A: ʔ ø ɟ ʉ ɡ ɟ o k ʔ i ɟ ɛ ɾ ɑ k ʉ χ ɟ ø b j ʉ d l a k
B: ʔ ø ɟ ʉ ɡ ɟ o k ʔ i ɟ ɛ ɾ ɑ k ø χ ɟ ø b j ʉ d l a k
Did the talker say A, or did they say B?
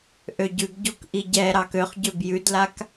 B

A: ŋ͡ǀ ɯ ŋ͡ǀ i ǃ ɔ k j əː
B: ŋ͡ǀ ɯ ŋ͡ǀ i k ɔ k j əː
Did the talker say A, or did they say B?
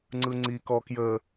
B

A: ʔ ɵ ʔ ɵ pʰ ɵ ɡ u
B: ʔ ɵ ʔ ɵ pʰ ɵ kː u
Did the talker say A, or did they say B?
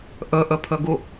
A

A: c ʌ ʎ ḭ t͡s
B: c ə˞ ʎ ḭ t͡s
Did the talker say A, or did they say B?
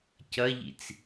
A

